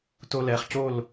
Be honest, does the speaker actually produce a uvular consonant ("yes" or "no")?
yes